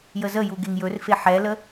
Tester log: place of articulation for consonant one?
palatal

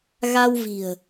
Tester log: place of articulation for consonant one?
velar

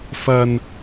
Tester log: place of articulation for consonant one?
labial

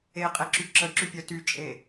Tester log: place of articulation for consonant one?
uvular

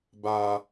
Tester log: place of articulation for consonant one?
labial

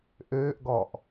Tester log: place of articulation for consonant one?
glottal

